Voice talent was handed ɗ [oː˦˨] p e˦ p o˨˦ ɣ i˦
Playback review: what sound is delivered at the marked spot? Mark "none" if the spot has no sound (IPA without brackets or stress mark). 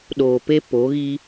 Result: oː˨